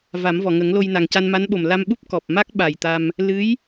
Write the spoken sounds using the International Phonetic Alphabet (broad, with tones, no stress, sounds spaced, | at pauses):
v a˨˩˦ m v ɔ˨˩˨ ŋ ə˨˩˦ ŋ l o˧ j n a˨˩ ŋ c a˧ n m a˧˥ n ɓ o˨˩ m l a˧ m ɓ u˦˥ p̚ k ɔ˨˩ p̚ m a˦˥ k̚ ɓ a˨˩ j t̪ a˧ m | l ɨ˧˥ j